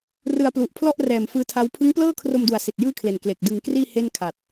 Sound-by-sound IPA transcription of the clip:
r ɯ˧ a̯ p l u˨˩ ʔ pʰ l ɔ˥˩ ʔ r ɛː˨˩ m f ɯː˦˥ tʰ a˦˥ w pʰ ɯ˦˥ ŋ p l ɤː˥˩ kʰ r o˧ m d u˩˦ a̯ s i˨˩ t̚ j ɯː˥˩ kʰ l e˨˩ n k l e˨˩ k̚ d ɯ˧ ŋ k r iː˥˩ h e˥˩ n kʰ a˨˩ t̚

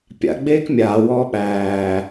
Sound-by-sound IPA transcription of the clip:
pʲ a̰ ɡ͡b eː k mʲ aː w ɔː ɓ æː

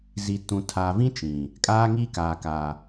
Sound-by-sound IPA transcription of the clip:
z i˨ t ũ˨ tʰ a˨ v ĩ˦ t͡ʃ ĩ˨ | kʼ aː˦ ŋ i˦ k aː˨ k a˨

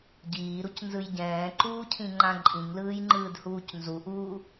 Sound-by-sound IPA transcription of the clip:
ɟ iː ɾ u c n z ɯ j ɟ ɛ̃ː ǃ uː cʰ ĩ ŋ͡ǃ ã ǃʼ ĩ ŋ l ɯː j ŋ͡ǃ ɯː d h uː c n z u ʔ uː

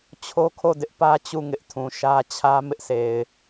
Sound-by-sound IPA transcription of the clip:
t͡ɕʰ o˦ kʰ o˦˨ d ɪ˦ ʔ p ä˦ t͡ɕ u˦˨ ŋ ɪ˦ ʔ tʰ ũ˨ ʃ ä˦ t͡ɕʰ ä˦ m ɪ˦ ʔ sʰ e˨ ɪ̯

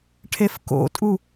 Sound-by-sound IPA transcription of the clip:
ʈʰ e f k o̰ tʼ u

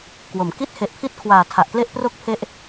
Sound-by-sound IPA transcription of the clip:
k w o˩˦ m k i˥˩ t̚ h e˨˩ ʔ pʰ i˦˥ t̚ kʰ w aː˨˩ tʰ a˨˩ ʔ k l e˥˩ ʔ p r o˥˩ k̚ pʰ e˦˥ ʔ

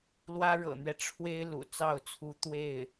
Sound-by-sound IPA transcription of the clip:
l w ä˥ ɻ ɤ̰˨˩ n̪ ɥ ɛ˦ ʈ͡ʂʰ w e˥ ɪ̯ l ṵ˨˩ t͡s ɑ˥˩ ʊ̯ t͡sʰ u˧˥ t̪ w e˥˩ ɪ̯

